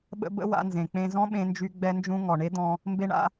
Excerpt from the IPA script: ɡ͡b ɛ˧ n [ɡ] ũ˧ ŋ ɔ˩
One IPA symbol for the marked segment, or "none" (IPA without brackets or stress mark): d͡ʒ